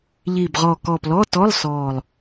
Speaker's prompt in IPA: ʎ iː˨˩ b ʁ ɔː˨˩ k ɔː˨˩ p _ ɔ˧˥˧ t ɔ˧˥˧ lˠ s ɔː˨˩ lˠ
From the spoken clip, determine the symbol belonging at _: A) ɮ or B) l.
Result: B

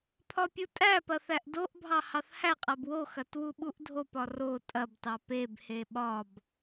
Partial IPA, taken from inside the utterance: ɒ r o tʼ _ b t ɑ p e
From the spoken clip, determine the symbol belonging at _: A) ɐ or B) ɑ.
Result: A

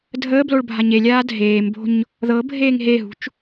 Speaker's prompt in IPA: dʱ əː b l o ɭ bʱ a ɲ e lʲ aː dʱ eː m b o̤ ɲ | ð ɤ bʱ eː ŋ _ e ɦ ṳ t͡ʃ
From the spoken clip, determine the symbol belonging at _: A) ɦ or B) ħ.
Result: A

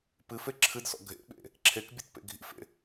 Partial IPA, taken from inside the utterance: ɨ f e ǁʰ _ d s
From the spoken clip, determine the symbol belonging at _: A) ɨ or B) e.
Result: A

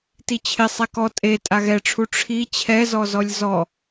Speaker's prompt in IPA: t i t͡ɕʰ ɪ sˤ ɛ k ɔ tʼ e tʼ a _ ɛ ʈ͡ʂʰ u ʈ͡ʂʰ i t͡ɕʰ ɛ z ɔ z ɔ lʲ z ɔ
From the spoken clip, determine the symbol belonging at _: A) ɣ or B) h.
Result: A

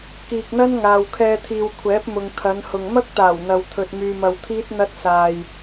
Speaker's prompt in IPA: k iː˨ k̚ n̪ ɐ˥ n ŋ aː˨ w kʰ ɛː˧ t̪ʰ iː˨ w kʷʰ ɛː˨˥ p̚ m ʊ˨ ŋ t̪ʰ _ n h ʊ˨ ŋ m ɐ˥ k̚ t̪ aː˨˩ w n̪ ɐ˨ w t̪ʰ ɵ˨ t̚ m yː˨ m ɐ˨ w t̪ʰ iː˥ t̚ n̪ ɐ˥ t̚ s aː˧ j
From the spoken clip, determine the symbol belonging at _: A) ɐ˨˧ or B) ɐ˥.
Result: A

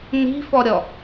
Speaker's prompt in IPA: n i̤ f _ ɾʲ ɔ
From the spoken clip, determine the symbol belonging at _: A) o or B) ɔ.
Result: B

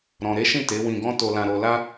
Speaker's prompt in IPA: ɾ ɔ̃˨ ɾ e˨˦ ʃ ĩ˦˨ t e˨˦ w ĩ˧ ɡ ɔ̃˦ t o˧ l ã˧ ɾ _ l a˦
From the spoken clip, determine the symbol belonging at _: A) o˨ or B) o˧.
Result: B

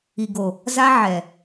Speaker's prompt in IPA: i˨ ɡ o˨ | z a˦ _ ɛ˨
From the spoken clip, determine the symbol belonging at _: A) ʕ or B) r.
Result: A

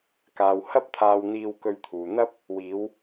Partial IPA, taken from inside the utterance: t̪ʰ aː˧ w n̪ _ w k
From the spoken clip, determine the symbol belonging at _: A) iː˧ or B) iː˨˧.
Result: A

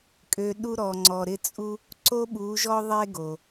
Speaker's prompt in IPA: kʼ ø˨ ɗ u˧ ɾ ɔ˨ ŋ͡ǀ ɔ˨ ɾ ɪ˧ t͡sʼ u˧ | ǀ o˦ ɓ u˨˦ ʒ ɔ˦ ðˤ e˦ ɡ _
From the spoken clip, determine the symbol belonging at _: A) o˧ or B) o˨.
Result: B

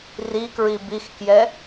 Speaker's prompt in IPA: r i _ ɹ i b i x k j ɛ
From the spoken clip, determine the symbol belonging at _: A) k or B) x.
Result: A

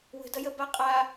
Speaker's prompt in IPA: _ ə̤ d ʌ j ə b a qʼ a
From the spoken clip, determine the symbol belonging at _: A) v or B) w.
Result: B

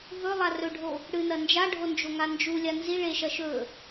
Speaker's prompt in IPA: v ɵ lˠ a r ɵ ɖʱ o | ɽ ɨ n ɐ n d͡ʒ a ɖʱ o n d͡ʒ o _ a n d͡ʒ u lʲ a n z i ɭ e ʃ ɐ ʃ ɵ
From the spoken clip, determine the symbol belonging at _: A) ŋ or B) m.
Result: A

